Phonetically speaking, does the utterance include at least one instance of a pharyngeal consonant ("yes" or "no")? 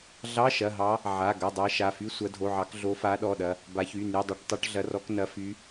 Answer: yes